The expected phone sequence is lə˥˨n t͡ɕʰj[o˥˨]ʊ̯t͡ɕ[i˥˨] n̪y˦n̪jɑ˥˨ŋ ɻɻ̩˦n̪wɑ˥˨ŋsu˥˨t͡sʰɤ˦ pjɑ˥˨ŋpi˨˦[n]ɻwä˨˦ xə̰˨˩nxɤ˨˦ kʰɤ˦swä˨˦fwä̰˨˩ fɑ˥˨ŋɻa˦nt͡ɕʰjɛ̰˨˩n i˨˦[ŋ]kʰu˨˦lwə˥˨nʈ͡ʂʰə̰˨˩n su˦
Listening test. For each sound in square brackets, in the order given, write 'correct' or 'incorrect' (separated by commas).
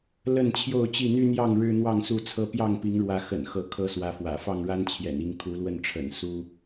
correct, correct, incorrect, correct